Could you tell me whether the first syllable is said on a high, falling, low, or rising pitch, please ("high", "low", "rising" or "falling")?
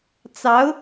rising